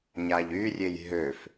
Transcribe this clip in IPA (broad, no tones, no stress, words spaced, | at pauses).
ɲaʎyrʲej ɦøf